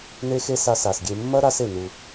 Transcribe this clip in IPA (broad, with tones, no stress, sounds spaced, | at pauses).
n e˦ x e˦ s a˧ s a˨ s ɡʲ e˧ mː ɐ˦ ɾ a˧ s e˨ n u˧